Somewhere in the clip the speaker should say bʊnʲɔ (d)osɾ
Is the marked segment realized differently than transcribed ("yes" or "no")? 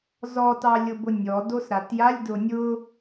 no